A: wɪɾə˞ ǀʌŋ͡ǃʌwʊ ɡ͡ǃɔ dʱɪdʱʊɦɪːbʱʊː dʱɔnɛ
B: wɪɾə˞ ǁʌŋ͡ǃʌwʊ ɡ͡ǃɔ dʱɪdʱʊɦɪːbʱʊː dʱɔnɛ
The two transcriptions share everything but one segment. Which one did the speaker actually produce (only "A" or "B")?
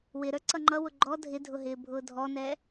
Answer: A